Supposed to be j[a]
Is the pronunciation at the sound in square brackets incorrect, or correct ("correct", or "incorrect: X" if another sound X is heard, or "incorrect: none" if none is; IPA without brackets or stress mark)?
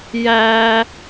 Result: incorrect: æ